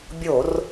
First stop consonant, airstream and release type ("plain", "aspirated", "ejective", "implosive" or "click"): plain